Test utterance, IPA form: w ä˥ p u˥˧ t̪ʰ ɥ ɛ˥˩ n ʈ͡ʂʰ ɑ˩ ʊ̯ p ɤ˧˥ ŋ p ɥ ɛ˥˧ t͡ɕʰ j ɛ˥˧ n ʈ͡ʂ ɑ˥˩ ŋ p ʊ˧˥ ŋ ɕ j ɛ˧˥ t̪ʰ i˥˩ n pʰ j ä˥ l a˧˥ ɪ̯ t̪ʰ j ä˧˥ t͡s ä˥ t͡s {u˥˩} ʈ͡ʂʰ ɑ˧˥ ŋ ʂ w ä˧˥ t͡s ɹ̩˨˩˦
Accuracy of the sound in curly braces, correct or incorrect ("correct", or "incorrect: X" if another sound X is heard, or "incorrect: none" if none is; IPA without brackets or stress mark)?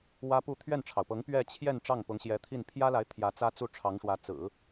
correct